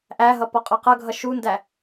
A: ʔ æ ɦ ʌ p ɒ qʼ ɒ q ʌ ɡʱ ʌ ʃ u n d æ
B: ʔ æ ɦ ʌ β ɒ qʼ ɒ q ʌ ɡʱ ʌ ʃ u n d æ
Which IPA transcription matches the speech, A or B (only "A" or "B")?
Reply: A